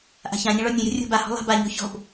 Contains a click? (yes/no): no